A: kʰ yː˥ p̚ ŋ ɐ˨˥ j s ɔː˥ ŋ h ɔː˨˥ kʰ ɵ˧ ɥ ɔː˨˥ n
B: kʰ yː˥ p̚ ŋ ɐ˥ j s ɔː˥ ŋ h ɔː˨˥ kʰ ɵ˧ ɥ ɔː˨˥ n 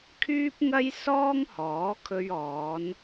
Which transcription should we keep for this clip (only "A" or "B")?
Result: B